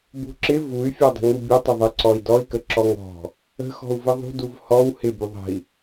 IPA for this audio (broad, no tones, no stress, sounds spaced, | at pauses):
b ṳ ǁ ɪ v u y̯ fʲ ɔ dˤ ə̤ ŋ u bʲ ə tˤ ɪ ðˤ ə ǀ ɔ i̯ d ɔ i̯ k ə ǁ ɔ ŋ ɔ̤ | ə̤ x ɔ̤ u̯ v ə ðˤ ṳ d u v h ɔ w h ɪ b u ðˤ ə̤ i̯